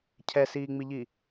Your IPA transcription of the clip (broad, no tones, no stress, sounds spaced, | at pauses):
cʰ ɛ s iː ŋ͡m i ʎ i